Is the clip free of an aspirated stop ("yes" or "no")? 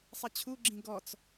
no